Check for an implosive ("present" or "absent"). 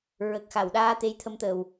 present